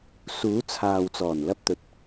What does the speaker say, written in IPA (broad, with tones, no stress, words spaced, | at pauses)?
suː˨˥t͡sʰaː˨wt͡sɔː˨˩n lɐ˥p̚t̪ɵ˨t̚